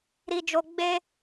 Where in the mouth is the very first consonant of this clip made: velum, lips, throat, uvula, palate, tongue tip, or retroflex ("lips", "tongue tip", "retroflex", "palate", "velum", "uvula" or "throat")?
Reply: tongue tip